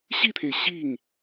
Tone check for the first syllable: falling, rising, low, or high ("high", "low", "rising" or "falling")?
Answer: falling